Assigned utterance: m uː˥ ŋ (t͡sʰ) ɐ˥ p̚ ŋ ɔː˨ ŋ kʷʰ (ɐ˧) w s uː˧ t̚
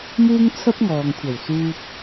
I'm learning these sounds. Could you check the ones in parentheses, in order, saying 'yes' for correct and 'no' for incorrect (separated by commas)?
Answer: yes, no